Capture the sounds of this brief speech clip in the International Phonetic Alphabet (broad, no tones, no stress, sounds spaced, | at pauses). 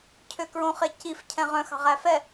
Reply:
cʰ ø k ɹ õ χ e c i f cʰ ɛ̃ ʁ œ̃ x ɑ̤ ʁ æ f ɛ